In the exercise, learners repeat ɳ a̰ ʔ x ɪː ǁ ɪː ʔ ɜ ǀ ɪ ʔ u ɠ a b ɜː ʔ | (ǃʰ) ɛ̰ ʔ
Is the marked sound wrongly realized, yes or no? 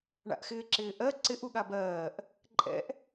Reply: yes